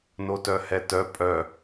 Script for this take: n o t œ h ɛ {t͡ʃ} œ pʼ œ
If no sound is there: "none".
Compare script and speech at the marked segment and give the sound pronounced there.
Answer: t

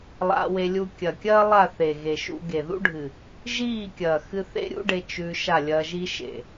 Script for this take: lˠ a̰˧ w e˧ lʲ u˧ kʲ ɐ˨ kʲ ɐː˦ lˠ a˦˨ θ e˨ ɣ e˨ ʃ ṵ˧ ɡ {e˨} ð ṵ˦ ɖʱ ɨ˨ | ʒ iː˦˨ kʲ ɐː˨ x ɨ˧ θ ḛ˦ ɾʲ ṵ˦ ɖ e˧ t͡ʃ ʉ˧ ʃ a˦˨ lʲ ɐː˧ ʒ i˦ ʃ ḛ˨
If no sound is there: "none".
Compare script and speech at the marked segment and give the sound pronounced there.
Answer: e˨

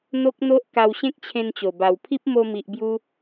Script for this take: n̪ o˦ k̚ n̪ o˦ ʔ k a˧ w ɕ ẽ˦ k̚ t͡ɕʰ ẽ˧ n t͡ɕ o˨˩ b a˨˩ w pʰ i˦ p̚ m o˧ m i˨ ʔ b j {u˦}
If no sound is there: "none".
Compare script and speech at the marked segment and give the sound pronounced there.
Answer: u˧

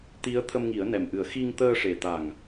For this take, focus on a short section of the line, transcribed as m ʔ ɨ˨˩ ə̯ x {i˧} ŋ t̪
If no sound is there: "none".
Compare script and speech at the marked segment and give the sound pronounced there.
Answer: i˧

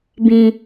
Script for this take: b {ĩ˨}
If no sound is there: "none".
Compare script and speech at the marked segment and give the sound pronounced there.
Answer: ĩ˨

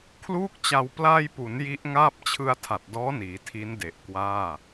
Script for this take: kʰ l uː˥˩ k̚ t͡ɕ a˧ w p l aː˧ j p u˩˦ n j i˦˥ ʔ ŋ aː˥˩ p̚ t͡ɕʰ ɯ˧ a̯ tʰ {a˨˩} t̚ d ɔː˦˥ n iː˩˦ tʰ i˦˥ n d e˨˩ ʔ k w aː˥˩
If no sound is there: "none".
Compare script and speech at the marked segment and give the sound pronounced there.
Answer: a˨˩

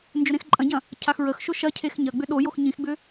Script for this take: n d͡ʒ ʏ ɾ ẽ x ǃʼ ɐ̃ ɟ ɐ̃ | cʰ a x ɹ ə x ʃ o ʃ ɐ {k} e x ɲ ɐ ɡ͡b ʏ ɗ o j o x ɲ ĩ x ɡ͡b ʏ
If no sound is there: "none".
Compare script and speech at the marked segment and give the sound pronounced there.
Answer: cʰ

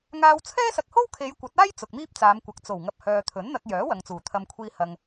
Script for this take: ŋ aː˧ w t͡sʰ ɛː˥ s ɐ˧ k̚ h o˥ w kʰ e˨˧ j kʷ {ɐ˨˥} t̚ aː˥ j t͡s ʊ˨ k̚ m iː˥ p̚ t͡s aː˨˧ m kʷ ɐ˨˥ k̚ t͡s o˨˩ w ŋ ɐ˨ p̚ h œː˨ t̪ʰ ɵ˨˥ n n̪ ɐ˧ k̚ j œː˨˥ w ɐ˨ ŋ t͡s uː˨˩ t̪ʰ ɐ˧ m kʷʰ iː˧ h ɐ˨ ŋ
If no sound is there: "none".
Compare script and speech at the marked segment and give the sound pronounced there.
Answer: ɐ˨˥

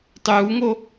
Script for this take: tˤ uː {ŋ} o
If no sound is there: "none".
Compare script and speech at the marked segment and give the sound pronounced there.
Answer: ŋ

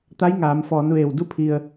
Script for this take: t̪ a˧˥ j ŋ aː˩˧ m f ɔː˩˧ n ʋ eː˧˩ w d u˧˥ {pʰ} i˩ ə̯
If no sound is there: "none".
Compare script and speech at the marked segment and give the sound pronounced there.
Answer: pʰ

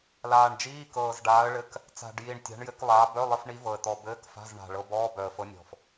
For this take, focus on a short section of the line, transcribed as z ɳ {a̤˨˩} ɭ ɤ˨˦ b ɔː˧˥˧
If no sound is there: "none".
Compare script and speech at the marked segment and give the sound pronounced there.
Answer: a̤˨˩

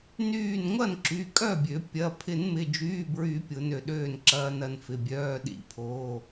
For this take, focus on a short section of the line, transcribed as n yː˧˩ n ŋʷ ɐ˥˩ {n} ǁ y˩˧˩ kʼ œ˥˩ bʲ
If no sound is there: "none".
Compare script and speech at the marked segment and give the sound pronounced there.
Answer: n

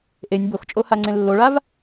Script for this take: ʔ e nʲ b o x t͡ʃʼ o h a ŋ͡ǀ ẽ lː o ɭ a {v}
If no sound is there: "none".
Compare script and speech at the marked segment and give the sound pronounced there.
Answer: v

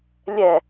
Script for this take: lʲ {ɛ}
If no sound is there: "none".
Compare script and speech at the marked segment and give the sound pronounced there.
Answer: ɛ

